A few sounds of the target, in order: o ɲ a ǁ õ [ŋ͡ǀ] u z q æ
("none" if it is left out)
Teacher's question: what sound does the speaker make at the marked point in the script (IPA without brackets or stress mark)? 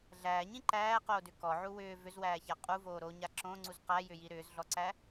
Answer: ŋ͡ǀ